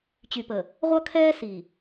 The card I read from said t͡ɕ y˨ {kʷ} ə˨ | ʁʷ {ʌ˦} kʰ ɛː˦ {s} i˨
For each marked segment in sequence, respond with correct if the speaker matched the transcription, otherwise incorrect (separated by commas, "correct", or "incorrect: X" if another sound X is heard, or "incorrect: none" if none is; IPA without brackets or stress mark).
incorrect: p, correct, correct